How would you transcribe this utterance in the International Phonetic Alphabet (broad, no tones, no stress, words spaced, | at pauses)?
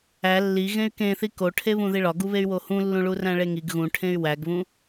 æ lːi ɣẽy̯kẽθi koʈʰeβũ ðiɭɒɡuβey̯ wohũlːũ ɭuræ̃ɭeŋiɡ ɣũʈʰẽy̯ wæɡβũ